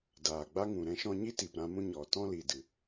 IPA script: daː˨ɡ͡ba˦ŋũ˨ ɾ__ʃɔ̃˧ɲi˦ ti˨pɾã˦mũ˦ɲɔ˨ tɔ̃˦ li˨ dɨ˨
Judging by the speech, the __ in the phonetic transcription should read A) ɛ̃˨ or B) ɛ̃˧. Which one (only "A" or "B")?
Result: B